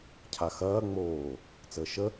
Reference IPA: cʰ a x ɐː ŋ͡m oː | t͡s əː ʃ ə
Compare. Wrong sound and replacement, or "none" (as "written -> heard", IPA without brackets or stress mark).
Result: none